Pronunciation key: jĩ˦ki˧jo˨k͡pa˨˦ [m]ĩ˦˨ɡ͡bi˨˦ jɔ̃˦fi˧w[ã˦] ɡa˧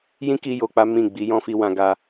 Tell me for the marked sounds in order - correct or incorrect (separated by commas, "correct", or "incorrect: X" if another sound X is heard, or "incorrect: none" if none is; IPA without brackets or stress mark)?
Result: correct, incorrect: ã˧